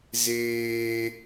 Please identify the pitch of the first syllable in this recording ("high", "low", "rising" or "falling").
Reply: high